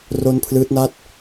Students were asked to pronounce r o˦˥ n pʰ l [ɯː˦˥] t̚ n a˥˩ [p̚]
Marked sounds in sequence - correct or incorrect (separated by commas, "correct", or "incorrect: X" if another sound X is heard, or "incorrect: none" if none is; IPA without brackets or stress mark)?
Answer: correct, incorrect: t̚